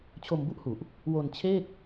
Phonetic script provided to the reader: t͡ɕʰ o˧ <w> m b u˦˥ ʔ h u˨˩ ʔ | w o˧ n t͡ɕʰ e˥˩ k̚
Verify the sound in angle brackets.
incorrect: none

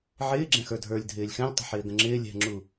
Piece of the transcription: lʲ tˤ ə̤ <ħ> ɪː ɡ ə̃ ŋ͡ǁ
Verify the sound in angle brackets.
correct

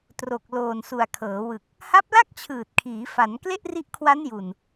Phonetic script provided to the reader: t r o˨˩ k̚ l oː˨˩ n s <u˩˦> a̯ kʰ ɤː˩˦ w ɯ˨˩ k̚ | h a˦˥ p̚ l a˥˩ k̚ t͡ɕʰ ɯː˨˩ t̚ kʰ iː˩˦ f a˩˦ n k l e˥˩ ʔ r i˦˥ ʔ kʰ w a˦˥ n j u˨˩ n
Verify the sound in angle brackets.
incorrect: u˨˩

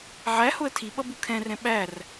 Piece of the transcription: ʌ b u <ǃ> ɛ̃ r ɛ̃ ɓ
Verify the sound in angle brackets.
incorrect: kʰ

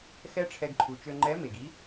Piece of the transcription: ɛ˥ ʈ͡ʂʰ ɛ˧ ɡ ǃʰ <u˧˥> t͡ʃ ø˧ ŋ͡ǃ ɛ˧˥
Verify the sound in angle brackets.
incorrect: u˩˧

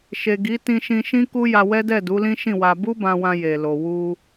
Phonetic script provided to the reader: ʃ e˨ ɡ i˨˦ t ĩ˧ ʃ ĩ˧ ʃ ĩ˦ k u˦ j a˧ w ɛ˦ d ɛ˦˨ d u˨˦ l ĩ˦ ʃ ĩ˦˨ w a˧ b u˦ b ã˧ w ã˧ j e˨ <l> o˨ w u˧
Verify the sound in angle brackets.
correct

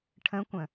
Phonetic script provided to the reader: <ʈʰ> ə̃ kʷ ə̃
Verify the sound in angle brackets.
correct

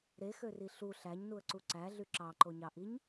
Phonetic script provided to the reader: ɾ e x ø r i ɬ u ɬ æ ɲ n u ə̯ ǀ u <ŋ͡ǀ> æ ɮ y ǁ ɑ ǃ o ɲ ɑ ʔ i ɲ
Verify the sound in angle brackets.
incorrect: ǀ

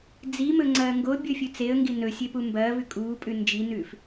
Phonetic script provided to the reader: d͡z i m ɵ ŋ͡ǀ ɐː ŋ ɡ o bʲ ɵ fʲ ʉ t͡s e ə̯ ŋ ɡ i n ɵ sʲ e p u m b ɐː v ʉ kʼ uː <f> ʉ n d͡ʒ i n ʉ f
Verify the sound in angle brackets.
incorrect: pʼ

